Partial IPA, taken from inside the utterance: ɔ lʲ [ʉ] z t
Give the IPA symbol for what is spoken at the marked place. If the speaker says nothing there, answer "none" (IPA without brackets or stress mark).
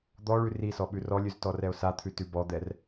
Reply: ʉ